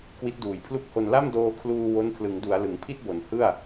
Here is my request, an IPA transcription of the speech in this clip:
k w i˦˥ t̚ d uː˨˩ j pʰ l u˥˩ k̚ h o˧ n l a˥˩ m d oː˧ kʰ l uː˧ w o˦˥ n pʰ l ɯ˩˦ ŋ d u˩˦ a̯ l ɯ˩˦ ŋ pʰ i˥˩ t̚ b o˩˦ n h ɯ˥˩ a̯

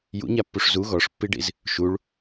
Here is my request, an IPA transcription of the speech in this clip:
j ṵ ɲ a pː u ʂ z u ɣ ɔ ʂ pː i ɖ ḭ z | ʃ u ɭ

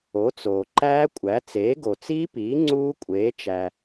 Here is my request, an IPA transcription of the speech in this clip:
o˩˥ t͡s oː˩ ǃ æː˦˥ kʷʼ æ˩˥ t͡s eː˩˥ ɡ o˩ t͡s iː˦˥ p iː˩˥ ŋ͡ǀ uː˦˥ kʷʼ eː˩˥ t͡ʃ æ˩

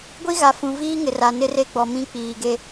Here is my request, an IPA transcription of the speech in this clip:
ɡʷ i˦ ɣ a˨ f ũ˨ v iː˦ ŋ ɪ˨ r a˨ n ɪ˦ r e˦ ɡ͡b ɔ˨ m ĩ˦ k͡p iː˨ ɡ e˦

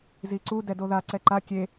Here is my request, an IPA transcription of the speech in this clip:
z i ǀ u d ɛ d o ð a ǀ ɛ ǃ a kʲ e

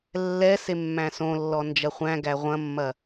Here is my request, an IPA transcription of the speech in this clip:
lː ɛ s e mː æ̃ s õ lː ɔ n d͡ʒ ɐ χʷ æ̃ ɡ æ ʁʷ ɐ̃ mː ɐ

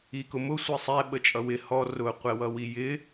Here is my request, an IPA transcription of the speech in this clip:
i k ʊ m ʊ sʷ i sˤ ɛ ɓ ə t͡ʃʼ ʌ w ɪ h ɔ r ʊ qʷ ɛ w ʌ w i j ɪ

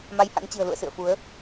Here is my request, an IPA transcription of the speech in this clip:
m a˨˦ j h a̰˧˥ ŋ t͡ɕ ɨ̤˨˩ ə̯ l ṵ˧˨ ə̯ s ɨ̰˧˨ ə̯ f u˨˦ ə̯

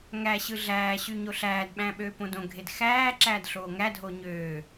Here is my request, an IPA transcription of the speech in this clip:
ŋ æ ɕ ɯ ɮ æː ɕ y ɲ o ɬ æː d ɓ æ̃ ɓ øː p õ d õ ɡʱ e d x æː ǁ æː d ɬ oː ŋ æ dʱ oː ɲ øː

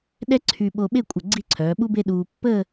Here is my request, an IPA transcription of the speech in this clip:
ɗ ɛ˥ ǀʰ y˧ ɓ o˧ ɓ e˥˧ kʷʼ ə˧˩ ɡ͡ǀ i˥˧ ǀʰ œː˩˧ ɓ u˥ b e˥ ɗ uː˧ pː əː˥˧

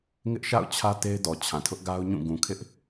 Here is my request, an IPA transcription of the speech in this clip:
ŋ ɪ˦ ʔ ʃ a̰˦˨ ʊ̯ t͡ɕʰ ä˦ t e˦ ɪ̯ d ɔ˨ t͡ɕʰ ã˨ tʰ ʊ˦ ʔ ɡ a˦ ʊ̯ ɲ ũ˦˨ ɡ ũ˨ kʰ ɪ˦ ʔ

